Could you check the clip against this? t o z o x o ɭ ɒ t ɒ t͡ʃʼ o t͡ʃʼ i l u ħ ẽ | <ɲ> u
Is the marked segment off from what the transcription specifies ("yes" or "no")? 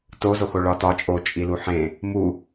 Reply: yes